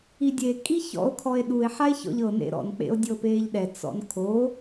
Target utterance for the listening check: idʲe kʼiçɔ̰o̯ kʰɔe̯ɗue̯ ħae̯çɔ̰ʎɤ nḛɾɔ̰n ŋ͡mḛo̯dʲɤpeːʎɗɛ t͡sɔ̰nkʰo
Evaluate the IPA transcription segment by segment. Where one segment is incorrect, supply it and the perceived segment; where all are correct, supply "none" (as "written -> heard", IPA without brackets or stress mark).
ŋ͡m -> k͡p